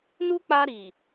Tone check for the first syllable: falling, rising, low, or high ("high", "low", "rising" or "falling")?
high